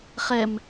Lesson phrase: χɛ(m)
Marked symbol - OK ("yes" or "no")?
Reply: yes